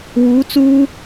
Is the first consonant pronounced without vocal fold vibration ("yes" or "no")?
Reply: no